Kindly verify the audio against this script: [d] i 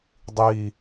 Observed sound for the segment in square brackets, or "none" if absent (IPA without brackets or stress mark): dˤ